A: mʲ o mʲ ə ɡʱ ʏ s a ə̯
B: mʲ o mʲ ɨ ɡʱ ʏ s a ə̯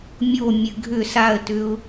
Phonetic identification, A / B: B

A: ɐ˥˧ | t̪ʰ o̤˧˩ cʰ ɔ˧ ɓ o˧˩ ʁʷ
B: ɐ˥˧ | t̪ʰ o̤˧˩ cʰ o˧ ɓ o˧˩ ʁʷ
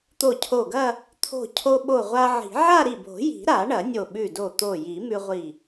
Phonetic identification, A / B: B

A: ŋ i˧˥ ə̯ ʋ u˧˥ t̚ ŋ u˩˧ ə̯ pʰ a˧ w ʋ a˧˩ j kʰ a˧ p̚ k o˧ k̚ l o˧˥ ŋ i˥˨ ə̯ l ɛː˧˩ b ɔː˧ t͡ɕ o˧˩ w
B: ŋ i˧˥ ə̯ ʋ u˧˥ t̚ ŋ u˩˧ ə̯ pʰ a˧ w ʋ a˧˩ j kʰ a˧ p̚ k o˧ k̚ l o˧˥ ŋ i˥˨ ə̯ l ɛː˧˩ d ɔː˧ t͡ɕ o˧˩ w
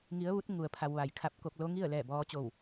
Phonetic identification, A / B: A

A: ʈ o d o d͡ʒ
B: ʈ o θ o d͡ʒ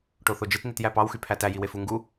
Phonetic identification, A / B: B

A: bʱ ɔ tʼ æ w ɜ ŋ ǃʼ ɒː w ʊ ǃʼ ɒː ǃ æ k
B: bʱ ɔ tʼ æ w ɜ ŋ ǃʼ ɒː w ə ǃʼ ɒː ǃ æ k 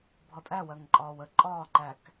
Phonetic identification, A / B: B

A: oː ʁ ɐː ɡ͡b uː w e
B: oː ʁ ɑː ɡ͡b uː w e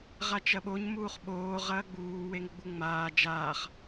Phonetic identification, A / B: A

